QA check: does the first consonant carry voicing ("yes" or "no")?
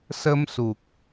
no